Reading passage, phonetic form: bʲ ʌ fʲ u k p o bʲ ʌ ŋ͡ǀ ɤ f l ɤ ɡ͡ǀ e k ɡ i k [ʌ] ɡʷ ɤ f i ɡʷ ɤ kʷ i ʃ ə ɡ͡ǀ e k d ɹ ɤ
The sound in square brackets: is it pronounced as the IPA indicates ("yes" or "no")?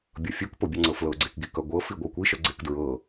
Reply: yes